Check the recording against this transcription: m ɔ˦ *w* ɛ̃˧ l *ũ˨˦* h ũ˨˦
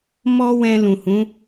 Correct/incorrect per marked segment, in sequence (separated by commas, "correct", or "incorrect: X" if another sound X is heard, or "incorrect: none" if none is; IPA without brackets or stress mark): correct, incorrect: ũ˨